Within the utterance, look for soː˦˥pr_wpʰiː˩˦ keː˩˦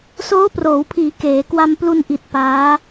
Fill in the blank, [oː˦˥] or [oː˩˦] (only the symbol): oː˩˦